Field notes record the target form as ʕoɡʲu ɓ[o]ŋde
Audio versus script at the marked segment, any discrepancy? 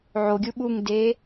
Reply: yes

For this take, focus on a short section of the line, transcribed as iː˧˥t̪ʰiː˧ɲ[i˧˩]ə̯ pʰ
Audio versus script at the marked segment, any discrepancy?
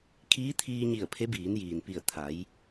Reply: no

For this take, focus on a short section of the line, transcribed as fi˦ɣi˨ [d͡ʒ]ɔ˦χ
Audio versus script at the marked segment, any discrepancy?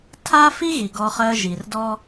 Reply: yes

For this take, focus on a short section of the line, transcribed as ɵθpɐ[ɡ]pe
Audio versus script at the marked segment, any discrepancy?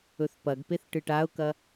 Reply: no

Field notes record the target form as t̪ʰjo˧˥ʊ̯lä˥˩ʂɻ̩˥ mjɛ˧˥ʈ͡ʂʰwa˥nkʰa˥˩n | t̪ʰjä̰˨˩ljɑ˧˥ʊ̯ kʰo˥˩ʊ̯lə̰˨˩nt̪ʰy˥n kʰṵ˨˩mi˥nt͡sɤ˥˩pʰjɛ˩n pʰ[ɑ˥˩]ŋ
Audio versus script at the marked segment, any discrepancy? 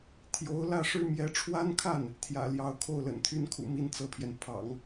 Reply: yes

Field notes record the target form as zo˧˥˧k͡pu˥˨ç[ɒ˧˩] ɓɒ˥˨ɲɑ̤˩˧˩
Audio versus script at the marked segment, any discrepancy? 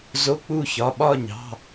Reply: yes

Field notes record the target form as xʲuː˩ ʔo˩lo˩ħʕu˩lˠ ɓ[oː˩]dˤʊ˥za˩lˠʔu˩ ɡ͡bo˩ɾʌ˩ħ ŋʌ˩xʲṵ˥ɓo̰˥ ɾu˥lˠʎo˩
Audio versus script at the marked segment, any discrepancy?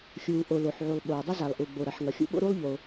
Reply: no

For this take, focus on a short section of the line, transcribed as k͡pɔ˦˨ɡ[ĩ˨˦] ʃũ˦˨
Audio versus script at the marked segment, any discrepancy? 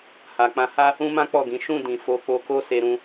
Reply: no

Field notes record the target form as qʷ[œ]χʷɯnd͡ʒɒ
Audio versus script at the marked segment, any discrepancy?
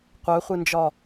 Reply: no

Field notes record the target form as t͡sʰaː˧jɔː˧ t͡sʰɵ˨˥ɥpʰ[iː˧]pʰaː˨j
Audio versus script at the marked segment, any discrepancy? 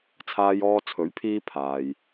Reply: no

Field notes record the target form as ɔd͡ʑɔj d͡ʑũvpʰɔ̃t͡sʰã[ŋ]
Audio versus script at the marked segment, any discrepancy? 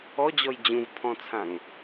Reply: no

